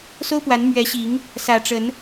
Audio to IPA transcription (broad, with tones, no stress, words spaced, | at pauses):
so˦ʊ̯ pwa˨˦n mɥɛ˨˦ɕi˨˦ŋ | sä˨˩ʈ͡ʂə˨˦n